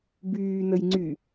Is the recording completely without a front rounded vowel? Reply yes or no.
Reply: no